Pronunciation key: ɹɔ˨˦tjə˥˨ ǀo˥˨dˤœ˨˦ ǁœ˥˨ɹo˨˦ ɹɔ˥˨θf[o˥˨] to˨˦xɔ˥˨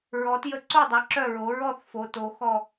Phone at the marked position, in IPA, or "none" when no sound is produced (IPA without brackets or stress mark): o˨˦